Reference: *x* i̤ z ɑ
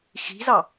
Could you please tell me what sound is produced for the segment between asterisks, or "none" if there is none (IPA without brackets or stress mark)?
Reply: x